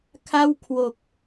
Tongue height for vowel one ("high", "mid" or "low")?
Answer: low